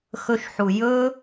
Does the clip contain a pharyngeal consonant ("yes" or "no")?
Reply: yes